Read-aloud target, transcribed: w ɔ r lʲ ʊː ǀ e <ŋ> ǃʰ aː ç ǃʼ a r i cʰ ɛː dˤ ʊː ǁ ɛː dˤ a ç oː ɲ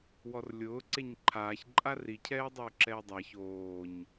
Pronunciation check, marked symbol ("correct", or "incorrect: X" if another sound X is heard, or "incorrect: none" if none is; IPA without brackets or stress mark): incorrect: ɲ